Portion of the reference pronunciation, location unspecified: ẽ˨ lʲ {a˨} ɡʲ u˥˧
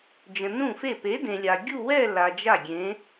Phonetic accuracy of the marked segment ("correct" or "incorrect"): correct